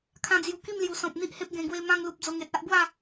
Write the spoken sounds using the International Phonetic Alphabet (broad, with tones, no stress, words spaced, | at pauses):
kʰã˧d͡zju˨˩ki˥˧mlju˨˩ sɔ̃˨p̚n̪i˦ʔhe˦p̚ ɡẽ˧ɡwe˦ mã˧ŋlu˨p̚ d͡zo˧ŋe˨t̚a˦ʔ ɡwa˥˧